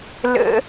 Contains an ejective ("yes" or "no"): no